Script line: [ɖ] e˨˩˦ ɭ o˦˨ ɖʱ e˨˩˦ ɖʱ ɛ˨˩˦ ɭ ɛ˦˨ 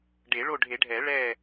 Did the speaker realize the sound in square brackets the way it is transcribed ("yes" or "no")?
yes